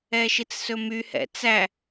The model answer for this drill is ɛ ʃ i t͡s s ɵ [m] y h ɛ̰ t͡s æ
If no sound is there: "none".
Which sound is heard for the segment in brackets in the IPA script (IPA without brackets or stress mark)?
m